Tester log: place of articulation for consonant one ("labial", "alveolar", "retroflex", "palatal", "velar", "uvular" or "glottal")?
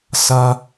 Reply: alveolar